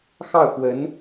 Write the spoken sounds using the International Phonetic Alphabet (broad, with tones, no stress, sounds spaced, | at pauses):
x ɑ˥˩ ʊ̯ k w ə˧˥ n